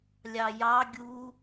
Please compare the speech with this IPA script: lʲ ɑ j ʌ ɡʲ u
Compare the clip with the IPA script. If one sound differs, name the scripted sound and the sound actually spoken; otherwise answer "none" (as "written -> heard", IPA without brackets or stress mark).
ʌ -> ɑ